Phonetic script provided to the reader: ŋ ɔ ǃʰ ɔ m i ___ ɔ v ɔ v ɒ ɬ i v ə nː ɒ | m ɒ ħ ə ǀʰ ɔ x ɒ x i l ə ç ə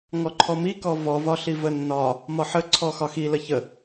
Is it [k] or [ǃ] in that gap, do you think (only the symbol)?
k